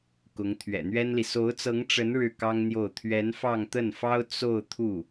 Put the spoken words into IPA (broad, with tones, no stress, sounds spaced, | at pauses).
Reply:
k ʊ˧˥ ŋ t̪ʰ ɥ ɛ̰˨˩ n̪ ɥ ɛ˥ n l i˨ s o˧˥ ʊ̯ t͡s ɤ˧˥ ŋ ʈ͡ʂ ə˧˥ n ɻ ɻ̩˥˩ k ɑ˥ ŋ n̪ j o˥˩ ʊ̯ t̪ʰ ɥ ɛ˧˥ n f ɑ˥˧ ŋ t̪ ə˥˩ n f ɑ˥ ʊ̯ t͡s o˥˧ ʊ̯ t̪ʰ u˥˩